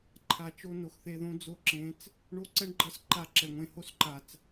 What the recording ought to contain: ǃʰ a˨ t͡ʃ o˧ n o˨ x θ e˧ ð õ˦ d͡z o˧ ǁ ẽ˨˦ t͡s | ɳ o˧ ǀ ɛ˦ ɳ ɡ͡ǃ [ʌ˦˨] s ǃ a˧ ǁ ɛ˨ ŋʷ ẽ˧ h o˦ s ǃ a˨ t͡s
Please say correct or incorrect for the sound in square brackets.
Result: incorrect: ʌ˧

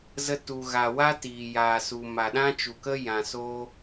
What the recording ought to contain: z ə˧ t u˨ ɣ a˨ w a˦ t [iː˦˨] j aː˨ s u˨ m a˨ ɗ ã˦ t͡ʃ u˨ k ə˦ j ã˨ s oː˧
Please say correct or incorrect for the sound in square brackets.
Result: incorrect: iː˨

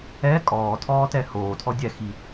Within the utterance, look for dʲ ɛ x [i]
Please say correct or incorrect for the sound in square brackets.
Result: correct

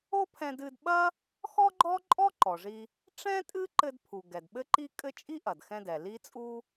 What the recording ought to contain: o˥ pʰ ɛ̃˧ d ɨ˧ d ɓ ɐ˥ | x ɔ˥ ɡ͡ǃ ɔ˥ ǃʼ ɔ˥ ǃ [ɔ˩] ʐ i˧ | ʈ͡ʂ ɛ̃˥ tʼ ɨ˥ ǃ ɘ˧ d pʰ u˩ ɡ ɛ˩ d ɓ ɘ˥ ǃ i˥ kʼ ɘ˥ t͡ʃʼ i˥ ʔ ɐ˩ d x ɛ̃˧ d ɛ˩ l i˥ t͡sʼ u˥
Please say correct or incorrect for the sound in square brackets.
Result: correct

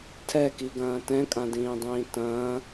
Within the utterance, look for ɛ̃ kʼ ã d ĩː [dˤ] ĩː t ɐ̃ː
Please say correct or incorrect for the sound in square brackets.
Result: correct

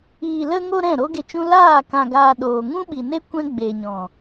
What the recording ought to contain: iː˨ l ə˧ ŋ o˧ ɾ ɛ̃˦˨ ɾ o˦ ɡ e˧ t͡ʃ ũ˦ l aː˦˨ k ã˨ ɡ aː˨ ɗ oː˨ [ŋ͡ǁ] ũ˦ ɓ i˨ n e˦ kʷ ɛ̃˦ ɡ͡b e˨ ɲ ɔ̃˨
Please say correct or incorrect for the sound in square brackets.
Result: incorrect: ŋ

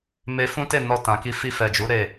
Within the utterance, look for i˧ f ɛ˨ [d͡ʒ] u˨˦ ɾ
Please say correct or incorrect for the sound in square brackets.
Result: correct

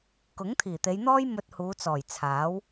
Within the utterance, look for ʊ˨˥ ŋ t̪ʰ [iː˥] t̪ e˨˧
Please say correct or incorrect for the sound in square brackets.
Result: incorrect: iː˨˩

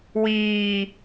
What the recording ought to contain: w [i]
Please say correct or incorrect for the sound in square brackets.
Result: incorrect: iː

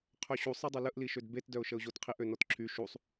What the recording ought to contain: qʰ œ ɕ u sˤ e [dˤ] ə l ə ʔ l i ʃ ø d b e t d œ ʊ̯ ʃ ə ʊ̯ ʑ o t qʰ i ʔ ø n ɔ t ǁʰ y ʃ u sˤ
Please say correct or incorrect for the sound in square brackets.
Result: correct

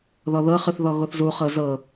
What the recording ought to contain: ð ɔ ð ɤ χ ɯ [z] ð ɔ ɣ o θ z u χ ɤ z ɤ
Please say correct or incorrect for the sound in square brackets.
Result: incorrect: θ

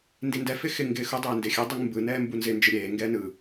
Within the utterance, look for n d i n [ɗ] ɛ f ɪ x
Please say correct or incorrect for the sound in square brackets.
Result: incorrect: d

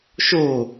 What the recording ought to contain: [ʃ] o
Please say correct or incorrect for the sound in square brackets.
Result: correct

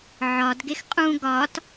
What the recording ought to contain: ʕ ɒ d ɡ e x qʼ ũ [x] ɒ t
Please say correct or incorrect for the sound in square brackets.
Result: incorrect: ɡ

